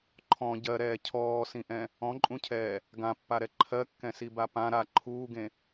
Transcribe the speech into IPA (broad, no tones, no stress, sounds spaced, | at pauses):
ǃʰ ɔ̃ ɟ ɜ ɾ ɛː cʰ ɔː s ĩ ʔ ɛ̃ | ɔ̃ ǃʼ ũ cʰ ɛː | ɡ ã pː a ɾ ɛ ǃʰ ɜ kː ɛ̃ s i b a p ã ɾ a ǃʰ uː ɡ ẽ